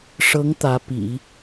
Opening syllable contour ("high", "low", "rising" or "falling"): rising